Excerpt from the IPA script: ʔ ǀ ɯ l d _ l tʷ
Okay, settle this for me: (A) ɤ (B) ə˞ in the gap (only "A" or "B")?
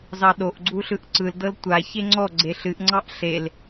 A